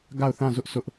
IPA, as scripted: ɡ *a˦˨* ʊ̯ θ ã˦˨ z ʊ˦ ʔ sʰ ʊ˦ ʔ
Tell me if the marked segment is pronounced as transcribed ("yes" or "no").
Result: yes